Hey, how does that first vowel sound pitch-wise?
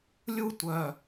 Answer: high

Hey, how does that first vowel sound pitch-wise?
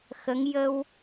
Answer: rising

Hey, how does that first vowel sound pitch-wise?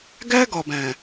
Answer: high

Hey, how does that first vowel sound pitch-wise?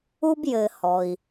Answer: high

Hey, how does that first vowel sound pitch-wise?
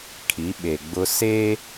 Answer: rising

